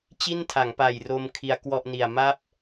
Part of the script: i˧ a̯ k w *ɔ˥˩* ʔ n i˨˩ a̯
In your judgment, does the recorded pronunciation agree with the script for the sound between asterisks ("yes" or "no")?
yes